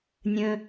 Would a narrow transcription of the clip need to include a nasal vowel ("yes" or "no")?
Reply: yes